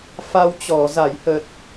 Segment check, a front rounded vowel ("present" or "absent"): absent